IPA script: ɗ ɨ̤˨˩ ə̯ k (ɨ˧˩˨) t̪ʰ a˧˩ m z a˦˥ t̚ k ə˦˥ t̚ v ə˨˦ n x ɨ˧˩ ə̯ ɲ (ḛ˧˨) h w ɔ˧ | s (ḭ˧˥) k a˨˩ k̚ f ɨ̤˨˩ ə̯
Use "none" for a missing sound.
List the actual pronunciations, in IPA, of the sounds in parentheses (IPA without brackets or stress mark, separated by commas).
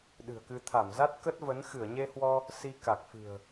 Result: ɨ˧, e˧, i˧